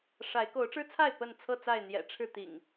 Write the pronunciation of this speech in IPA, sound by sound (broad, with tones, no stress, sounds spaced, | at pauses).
ʂ a˨˦ ɪ̯ k o˨˦ ʊ̯ ʈ͡ʂ ɻ̩˦ t͡sʰ a˥˨ ɪ̯ p ə˥˨ n t͡sʰ ɤ˥˨ t͡s a˥˨ ɪ̯ n̪ j ɛ̰˨˩ ʈ͡ʂʰ ɻ̩˥˨ t̪ ḭ˨˩ ŋ